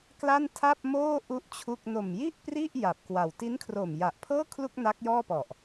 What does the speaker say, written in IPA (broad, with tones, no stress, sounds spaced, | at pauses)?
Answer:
k l a˥˩ n tʰ a˥˩ p̚ m oː˥˩ ʔ u˥˩ ʔ t͡ɕʰ u˥˩ k̚ n o˨˩ m j i˥˩ ʔ p r i˥˩ ʔ j a˨˩ p̚ k w a˨˩ w t i˦˥ n kʰ r o˨˩ m j a˨˩ ʔ pʰ ɤː˥˩ kʰ l u˥˩ k̚ n a˦˥ k̚ j ɔː˥˩ p ɔ˨˩ ʔ